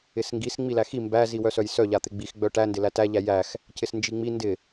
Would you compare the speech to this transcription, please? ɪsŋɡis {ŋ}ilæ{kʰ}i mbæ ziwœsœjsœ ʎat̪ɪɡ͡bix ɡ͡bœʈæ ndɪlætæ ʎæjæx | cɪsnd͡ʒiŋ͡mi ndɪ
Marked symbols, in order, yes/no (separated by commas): no, no